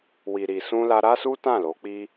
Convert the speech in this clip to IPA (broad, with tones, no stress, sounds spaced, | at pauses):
w i˨ ɾ i˨ s ũ˧ l a˧ ɾ a˦ s u˦ t ã˦˨ l o˨˦ k͡p i˦